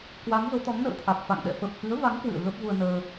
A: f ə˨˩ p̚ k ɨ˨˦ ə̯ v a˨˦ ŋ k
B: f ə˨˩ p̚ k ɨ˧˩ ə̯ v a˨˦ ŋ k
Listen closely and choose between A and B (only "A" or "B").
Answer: A